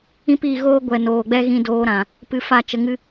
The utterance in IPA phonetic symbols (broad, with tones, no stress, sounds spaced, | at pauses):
ĩ˧ p iː˨ ɣ oː˦ ɡʷ ɛ˨ n oː˨ ɡ͡b ɛ˦ ɣ ĩ˧ d oː˧ ɾ ã˨ | p ɨ˧ f a˦˨ t͡ʃ ə˧ ŋ ɨ˦